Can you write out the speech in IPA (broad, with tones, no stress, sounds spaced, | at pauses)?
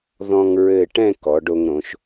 ð ɔ̃˧ ŋ ɹ ɘ˧˩ ʈ ɛ̃˥˧ k ɔ˩˧ ɖ o˧ ŋ ɾ õ˩˧ ʃ